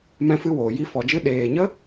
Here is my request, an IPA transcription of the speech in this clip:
m ɛ̃˦ f ɨ˦ w oː˨ j i˦ f ɔ˨ d͡ʒ ɨ˦ ɗ eː˨ ɲ ə˦

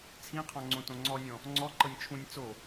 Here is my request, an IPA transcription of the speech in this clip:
t͡sʰ ĩ qʰ ɔ̃ ŋ͡ǀ õ t õ ŋ͡ǀ ɔ nʲ ɔ̃ | ŋ͡ǀ ɔ ǃ ɤ nʲ t͡ʃʰ ũ nʲ t͡s o

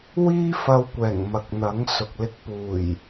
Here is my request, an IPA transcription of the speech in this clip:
w iː˥ f ɐ˧ w kʷ ɛː˨˩ ŋ m ɐ˨ k̚ n̪ ɐ˨˥ ŋ s ʊ˨ k̚ l ɪ˧ k̚ p uː˨˩ j

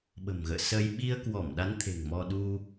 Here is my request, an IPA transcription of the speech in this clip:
ɓ ə̤˨˩ m ɣ ə̰ː˧˨ s əː˧ j ɓ i˧ ə̯ k w ɔ˧˩ m ɗ a˨˦ n t̪ʰ e̤˨˩ ŋ m ɔ˧ ɗ u˧

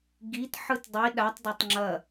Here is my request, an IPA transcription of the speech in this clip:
ɡ i t ħ ɯ t dˤ i ɗ a tˤ d ɐ tˤ ŋ͡ǁ ɐ

